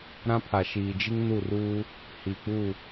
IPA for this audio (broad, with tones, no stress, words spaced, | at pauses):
ɾã˦pʰa˨ ʃiː˨d͡ʒi˦ŋnu˦˨ruː˦ | hi˨k͡pu˦˨